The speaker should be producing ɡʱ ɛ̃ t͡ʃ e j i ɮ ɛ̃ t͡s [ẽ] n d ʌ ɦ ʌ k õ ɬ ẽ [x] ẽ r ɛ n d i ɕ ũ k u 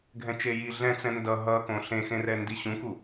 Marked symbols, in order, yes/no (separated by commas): no, yes